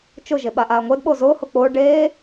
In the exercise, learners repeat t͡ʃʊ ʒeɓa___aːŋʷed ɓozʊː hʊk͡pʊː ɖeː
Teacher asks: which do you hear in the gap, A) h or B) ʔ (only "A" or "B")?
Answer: B